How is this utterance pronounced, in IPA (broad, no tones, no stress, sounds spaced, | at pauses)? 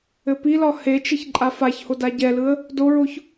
ɘ p i l ɒ h e t͡ʃ ɘ ç ǃʼ a f a ç h o d a ɟ ɛ l ɯ ə̯ | d o ɹ o ç